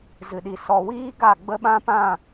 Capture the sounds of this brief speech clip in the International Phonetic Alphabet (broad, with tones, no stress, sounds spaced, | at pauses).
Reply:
z ɨ˨ ɗ i˨ s ɔ˨ w iː˦ ɡ a˦˨ ɡ͡b ə˦ ɓ ã˦ p ã˦˨